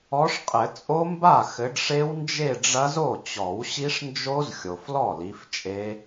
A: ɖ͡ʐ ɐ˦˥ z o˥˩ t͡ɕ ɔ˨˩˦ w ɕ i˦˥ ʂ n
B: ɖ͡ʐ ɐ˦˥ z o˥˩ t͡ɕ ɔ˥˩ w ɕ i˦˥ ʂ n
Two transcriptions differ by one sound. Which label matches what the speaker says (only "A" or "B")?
A